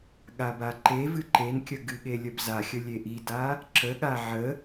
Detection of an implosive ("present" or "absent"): present